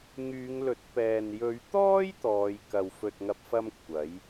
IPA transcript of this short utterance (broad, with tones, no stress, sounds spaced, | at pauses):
ŋ yː˨˧ ŋ l ɵ˨˥ t̚ p ɛː˨ n j ɵ˨˧ ɥ t̪ ɔː˥ j t̪ ɔː˨˧ j k ɐ˨ w f ɵ˨ t̚ ŋ ɐ˨ p̚ f ɐ˧ m kʷʰ ɐ˨˥ j